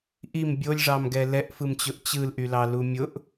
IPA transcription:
ʔ i m bʲ o lʲ ʐ ɑ m ɡ ɛ l ɛ ʔ f ɯ m t͡ɕ ʊ ʔ t͡ɕ ɯ l ʔ y l ɑ l u mʲ ʊ ʔ

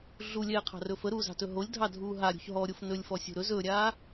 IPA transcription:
ɮ u lʲ ɛː qʰ ɑ̤ r ɵ f ə ɾ uː z ɑ̤ t ɵ ɦ o lʲ dʱ ɑ dʱ uː ɦ a ɾʲ ṳ ç ɦ ɔ ɾʲ o f n ɵ lʲ f ɔ sʲ ṳ ɾ ɵ z ɵ ɾʲ aː

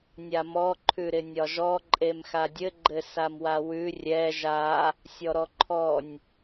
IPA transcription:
nʲ a m ɔ ǃʰ ʉ ɾ ɪ nʲ ɒ ʒ ɔ ǃʼ e m x a dʲ ɘ ɡ͡ǃ ɘ s a m w a w ʉ rʲ ɛ ʒ a | sʲ ɔ ɾ ɔ ǃʰ ɔ nʲ

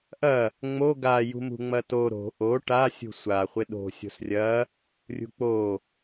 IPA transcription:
ʔ ɐ | ŋ͡m o ɡ a j ṳ m ṳ ŋ͡m ɐ t o ɾ o̤ ʔ o ʈ a sʲ ṳ sʷ a χʷ ɪ ɗ o̤ sʲ o̤ s rʲ ɐ | rʲ ṳ k͡p o

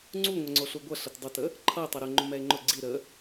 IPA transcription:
ŋ͡ǀ u ŋʷ ɛ ŋ͡ǀ o ɬ u ɡʷ ʌ ɬ ə t dˤ ə t ə | ǃʰ ʌ e̯ tˤ ʌ ɾ ʊ ŋ͡ǃ ʊ m ɛ e̯ ŋ͡ǃ ʊ ɡ͡ǀ i ɾ ə

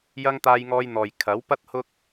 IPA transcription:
j ɐ˥ ŋ t̪ aː˧ j ŋ ɔː˧ j n̪ ɔː˨ j kʰ ɐ˨˥ w p ɐ˥ t̚ h ʊ˥ k̚

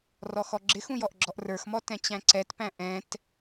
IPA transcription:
r ɔ x ɔ ɡ͡ǁ ɪ x ũ j ɔ ʔ ɡ͡ǁ ɔ ʔ r ə˞ x m ɔ t ɛ̃ t͡ɕ æ̃ ǀ ɛ t p æ̃ ʔ ɛ̃ t

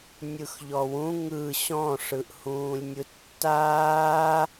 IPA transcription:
nʲ ɯ x ʎ ɔ w ũ ŋ ɯ ɕ ɔ̃ ʂ ɯ ʔ h ũː lʲ nʲ ɯ tː aː

